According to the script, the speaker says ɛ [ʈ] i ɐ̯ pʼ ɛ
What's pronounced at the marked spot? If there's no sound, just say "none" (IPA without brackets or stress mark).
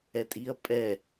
tʼ